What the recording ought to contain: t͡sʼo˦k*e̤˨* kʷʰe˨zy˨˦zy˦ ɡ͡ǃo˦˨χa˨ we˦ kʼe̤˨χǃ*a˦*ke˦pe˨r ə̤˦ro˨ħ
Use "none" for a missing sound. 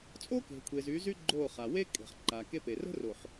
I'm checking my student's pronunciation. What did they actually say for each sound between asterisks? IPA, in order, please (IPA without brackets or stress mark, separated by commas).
e̤˨, a˨